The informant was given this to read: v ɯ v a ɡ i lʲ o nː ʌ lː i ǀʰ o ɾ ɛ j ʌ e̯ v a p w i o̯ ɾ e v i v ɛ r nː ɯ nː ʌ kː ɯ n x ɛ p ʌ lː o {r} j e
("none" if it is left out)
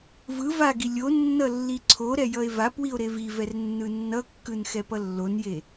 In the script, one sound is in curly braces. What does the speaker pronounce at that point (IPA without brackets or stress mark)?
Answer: n